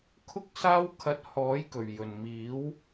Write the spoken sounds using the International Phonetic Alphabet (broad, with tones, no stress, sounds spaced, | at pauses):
kʰ ʊ˥ k̚ s aː˥ w kʰ ɐ˧ t̚ h ɔː˨˥ j k ɵ˨˩ ɥ j ɵ˨˩ n m iː˨˥ w